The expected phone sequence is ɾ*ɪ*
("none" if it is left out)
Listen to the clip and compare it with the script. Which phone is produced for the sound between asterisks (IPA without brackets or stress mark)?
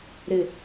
ɪ